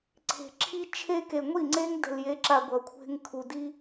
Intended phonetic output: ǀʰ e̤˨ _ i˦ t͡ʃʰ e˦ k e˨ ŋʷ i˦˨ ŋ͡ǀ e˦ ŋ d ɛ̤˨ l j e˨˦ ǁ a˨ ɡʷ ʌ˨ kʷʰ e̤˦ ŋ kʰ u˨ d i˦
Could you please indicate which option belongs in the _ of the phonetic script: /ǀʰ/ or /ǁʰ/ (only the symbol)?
ǁʰ